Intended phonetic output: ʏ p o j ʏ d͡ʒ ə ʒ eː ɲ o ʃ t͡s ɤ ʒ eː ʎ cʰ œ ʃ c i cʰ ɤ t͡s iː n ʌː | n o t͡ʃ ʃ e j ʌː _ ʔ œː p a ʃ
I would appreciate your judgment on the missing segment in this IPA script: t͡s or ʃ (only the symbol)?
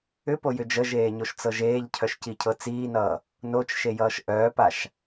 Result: ʃ